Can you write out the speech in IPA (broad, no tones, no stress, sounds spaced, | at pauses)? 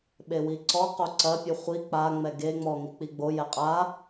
ɓ e w i ǀ ɔ q o ǀ ɐ pʲ ɨ χʷ i k͡p a ŋ͡m ɛ ɡ e ŋ͡m ɔ ŋ i k͡p i ɡ͡b o j ɛ qʼ a